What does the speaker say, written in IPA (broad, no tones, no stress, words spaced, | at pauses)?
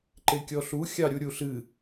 ǃekʲɔɬu xʲɑɾʲuɾʲuɬɨ